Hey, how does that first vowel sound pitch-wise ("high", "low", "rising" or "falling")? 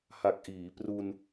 low